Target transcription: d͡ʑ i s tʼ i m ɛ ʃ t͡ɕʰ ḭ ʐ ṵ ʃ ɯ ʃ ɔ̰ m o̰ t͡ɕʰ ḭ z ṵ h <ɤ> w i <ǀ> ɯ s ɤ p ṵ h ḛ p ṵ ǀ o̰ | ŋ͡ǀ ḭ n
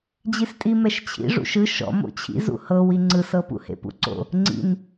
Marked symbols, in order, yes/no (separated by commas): yes, no